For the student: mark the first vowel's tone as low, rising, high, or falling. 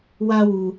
high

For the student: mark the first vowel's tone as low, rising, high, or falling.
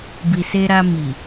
low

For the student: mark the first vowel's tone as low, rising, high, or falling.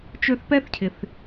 high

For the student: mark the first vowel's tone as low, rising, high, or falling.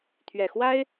low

